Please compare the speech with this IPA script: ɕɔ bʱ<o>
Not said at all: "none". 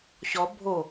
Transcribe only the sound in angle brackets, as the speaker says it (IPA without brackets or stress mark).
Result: o